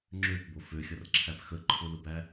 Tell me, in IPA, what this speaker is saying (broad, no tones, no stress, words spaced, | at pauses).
ŋ͡ǁøpbo føxʲʌrǁʰæp xəǃʰʊlʊbæ